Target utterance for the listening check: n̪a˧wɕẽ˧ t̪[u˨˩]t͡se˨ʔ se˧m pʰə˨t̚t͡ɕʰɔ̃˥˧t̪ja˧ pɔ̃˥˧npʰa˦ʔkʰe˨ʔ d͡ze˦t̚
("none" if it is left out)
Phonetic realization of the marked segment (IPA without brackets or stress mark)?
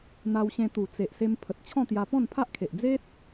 u˨˩